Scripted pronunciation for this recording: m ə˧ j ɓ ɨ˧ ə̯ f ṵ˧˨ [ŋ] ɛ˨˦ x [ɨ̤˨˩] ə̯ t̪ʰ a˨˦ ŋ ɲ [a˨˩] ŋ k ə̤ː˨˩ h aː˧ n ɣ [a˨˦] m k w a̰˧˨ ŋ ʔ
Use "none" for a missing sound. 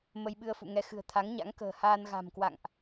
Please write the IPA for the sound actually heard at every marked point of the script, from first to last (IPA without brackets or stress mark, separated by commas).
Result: ŋ, ɨ̤˨˩, a̰˧˥, a̤˨˩